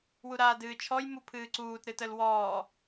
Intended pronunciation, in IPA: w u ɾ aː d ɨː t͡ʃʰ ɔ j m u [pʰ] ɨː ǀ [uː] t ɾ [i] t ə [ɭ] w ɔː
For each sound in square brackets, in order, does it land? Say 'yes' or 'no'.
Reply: yes, yes, no, no

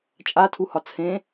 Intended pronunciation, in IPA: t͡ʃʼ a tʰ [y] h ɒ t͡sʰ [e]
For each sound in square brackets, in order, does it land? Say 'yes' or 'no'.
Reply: no, no

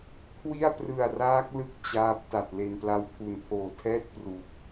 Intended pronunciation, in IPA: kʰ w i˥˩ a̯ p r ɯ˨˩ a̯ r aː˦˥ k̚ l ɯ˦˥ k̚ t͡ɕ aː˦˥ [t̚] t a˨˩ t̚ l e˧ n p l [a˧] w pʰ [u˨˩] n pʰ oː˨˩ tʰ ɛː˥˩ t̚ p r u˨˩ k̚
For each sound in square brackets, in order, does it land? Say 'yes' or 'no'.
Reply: no, no, yes

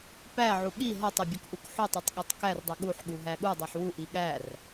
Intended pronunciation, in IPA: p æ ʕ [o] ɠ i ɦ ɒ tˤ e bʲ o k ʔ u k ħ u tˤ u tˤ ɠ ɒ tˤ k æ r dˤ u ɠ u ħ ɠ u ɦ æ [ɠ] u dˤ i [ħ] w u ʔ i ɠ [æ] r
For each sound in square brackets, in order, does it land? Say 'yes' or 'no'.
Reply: no, yes, yes, yes

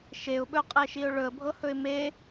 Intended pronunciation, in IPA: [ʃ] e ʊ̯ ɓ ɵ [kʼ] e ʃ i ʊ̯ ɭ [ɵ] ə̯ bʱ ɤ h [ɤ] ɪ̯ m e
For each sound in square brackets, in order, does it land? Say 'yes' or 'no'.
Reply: yes, no, yes, no

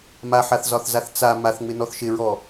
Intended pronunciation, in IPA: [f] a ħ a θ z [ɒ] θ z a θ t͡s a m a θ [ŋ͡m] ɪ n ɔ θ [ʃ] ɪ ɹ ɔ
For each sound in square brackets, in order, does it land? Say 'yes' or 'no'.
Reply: no, yes, yes, yes

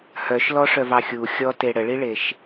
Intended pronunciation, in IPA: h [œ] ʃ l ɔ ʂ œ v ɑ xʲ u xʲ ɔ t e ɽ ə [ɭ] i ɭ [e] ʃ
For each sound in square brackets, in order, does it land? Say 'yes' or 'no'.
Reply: yes, yes, yes

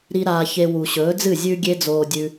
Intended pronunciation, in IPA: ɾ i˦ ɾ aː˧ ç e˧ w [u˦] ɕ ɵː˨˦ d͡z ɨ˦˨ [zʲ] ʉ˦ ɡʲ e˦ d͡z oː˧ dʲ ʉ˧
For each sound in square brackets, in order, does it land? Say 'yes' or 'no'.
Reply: no, yes

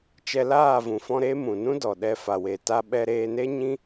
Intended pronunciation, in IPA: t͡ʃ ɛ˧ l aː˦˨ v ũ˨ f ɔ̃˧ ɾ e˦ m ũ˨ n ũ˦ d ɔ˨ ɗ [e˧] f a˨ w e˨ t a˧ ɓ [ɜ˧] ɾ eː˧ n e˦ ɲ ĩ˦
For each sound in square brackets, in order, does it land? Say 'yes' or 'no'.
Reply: no, no

